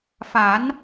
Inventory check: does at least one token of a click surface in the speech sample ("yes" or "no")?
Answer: no